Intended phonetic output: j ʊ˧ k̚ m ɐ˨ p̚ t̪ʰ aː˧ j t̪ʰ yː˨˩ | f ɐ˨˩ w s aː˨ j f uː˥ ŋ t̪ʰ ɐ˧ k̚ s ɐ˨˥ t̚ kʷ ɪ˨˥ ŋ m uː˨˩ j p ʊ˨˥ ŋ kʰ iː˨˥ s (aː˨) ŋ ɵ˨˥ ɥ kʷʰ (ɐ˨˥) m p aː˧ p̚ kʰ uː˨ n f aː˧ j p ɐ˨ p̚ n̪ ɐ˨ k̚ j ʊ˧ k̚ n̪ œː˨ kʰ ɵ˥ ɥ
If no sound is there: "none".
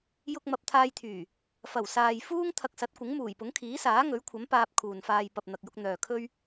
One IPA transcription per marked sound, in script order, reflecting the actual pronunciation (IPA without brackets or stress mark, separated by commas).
aː˨˥, ɐ˨˥